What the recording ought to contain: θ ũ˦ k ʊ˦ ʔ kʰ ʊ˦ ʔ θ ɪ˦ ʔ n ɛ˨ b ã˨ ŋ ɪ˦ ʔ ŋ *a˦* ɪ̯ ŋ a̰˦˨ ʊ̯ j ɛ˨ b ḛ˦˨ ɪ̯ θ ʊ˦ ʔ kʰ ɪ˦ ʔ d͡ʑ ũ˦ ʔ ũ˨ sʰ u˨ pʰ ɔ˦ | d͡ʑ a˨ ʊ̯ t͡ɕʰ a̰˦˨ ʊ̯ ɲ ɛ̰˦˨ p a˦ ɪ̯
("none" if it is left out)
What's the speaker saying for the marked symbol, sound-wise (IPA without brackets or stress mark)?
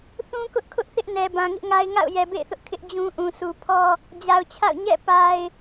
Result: a˦